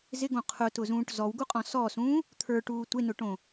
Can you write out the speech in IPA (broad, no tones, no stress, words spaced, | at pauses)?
zɪɡõ qʰʊtʊzũːʈ zɔwɡuqʼɔ̃ sɔsũː | t̪ʰə˞ʈuː tʷenʊʈõ